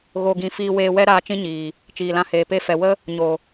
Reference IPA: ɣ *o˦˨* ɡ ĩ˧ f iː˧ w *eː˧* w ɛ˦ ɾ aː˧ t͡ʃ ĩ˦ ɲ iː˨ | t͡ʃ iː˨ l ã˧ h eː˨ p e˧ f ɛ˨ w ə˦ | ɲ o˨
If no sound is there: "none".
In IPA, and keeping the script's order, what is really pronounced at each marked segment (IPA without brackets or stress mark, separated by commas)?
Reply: o˧, eː˧